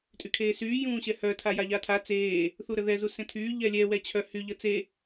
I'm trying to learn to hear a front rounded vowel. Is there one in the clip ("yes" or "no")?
yes